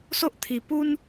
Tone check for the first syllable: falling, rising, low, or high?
high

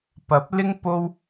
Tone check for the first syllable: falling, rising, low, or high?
rising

